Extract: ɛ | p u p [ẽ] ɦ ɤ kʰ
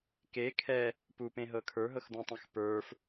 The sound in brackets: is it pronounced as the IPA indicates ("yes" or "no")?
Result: yes